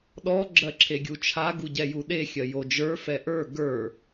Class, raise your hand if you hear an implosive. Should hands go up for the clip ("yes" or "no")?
yes